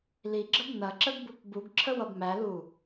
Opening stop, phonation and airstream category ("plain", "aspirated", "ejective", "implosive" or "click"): click